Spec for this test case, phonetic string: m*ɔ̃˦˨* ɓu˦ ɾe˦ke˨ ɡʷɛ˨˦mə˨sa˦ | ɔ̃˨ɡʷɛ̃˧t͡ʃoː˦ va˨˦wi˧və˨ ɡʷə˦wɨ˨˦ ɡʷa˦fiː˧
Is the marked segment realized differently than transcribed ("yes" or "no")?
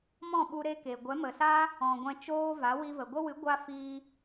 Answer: no